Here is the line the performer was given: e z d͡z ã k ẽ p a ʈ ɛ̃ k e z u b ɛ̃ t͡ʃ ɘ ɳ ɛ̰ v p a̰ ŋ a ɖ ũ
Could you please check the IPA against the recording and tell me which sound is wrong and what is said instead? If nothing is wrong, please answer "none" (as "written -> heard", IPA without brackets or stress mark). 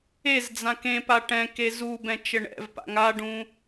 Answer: none